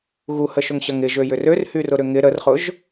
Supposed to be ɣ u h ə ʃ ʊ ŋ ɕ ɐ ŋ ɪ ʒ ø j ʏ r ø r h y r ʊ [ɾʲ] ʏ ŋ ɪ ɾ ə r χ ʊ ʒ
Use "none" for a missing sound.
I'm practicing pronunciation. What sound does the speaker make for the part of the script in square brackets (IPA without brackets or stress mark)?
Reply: ɾ